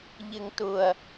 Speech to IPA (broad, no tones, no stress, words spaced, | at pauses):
ʎɪŋtʊɐ̯